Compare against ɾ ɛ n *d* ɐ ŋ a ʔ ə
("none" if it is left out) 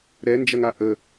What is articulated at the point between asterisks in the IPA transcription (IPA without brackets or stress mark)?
d͡ʒ